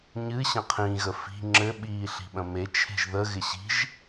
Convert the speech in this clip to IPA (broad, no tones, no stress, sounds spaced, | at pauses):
ɲ ɨ ɕ ə̃ qʰ ĩ ɣ ə f i̤ ŋ͡ǁ ɘ ɓ iː ɬ i̤ ɓ ə̃ m e t͡ʃʰ e̤ ʒ ð ə ɣ ɪ ɕ i̤ ʒ